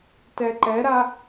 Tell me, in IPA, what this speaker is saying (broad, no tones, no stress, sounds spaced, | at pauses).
t ɛ ǃ ɛ ɾ a